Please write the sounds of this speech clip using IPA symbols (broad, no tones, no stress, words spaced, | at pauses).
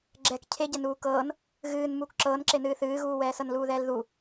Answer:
ɡ͡ǁɛk cʰe ɟɛnuːkɤːn | ɣɨːn muːkǁɤːnǁenɨː θɨːɣuːwɛːsɤn luːðɛːlðu